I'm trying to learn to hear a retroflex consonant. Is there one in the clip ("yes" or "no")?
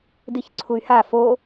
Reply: no